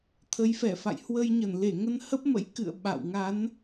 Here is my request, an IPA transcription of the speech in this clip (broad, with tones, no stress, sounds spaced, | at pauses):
t̪ʰ ə˨˦ j f ɛ˧˩ f a̰˧˨ j h w ə˧ j ɲ ə˧˩ n l e˧˩ ŋ ə˧ n h ə˦˥ p̚ m ə̰˧˥ j k ɨ̰˧˨ ə̯ ɓ a̰˧˨ w ŋ a˨˦ n